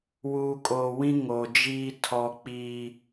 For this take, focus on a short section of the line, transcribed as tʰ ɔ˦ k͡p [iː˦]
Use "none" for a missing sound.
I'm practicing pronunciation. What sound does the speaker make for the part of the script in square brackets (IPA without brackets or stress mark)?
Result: iː˦